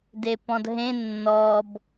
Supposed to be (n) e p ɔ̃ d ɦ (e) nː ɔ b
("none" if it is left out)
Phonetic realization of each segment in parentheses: d, ẽ

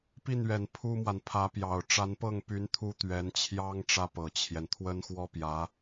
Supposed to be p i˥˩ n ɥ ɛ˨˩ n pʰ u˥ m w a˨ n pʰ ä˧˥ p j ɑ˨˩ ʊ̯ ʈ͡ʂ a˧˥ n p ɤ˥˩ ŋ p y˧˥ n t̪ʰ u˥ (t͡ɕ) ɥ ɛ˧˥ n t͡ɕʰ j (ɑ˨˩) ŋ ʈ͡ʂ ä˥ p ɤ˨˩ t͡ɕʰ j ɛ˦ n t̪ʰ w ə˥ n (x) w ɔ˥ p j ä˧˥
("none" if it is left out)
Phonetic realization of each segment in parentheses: t̪, ɑ˥, x

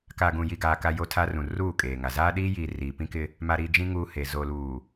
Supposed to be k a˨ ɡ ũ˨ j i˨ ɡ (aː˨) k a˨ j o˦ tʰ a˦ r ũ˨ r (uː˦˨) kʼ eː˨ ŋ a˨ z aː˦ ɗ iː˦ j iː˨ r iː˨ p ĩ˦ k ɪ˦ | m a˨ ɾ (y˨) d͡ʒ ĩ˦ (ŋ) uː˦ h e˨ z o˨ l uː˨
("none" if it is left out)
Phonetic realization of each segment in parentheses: aː˨, uː˦˨, i˨, ŋ

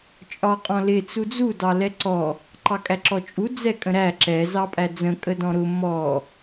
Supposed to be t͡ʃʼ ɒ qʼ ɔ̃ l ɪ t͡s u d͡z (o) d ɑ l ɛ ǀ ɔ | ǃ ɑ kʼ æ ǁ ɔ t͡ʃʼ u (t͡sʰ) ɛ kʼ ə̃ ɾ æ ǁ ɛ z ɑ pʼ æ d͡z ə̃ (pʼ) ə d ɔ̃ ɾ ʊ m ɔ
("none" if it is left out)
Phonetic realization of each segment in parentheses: u, d͡z, kʼ

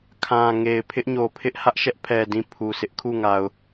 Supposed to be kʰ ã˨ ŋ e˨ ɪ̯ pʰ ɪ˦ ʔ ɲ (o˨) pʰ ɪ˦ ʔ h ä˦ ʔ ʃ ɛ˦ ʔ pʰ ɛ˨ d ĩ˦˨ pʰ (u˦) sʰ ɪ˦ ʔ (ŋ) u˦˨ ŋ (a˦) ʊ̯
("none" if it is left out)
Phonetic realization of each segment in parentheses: o˨, u˨, kʰ, a˨

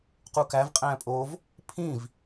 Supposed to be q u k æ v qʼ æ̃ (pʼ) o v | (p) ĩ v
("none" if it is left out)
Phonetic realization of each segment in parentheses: pʼ, pʰ

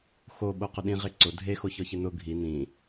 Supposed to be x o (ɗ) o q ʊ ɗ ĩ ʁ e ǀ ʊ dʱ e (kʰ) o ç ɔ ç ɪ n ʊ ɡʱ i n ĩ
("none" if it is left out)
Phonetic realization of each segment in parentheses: ɓ, x

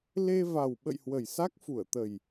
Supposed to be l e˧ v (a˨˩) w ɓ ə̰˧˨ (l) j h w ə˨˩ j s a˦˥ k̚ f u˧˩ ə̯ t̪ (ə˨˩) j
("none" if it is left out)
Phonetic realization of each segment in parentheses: a˨˩, none, ə˨˩

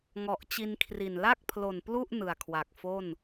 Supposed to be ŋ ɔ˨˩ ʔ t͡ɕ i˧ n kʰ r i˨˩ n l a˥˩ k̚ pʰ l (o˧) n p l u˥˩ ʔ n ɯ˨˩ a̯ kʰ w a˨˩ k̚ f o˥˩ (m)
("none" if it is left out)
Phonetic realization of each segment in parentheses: o˨˩, n

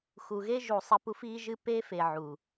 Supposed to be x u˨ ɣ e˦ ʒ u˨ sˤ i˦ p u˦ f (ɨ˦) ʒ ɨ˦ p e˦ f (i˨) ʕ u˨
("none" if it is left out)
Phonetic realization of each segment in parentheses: i˦, e˨

